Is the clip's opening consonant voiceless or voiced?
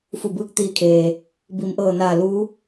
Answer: voiceless